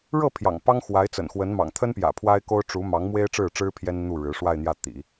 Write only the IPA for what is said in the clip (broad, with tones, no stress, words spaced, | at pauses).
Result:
ɻɤ˥˩ pʰjɑ̰˨˩ŋpɑ˥ŋ xwa˧˥ɪ̯t͡sə̰˨˩nxwə˧˥nmɑ̰˨˩ŋ t̪ʰə˥npjä̰˨˩ pʰwa˥ɪ̯ko˥ʊ̯ ʈ͡ʂu˧˥ mɑ˧˥ŋmwe˥ɪ̯ʈ͡ʂɻ̩˥˩ʈ͡ʂɻ̩˥ pʰjɛ˥nn̪u˥˩ɻɻ̩˧˥ ʂwa˥˧ɪ̯n̪jä˥˩ t̪ḭ˨˩˦